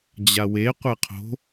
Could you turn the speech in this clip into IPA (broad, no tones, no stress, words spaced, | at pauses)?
d͡ʑawe qʷɛqʰo̤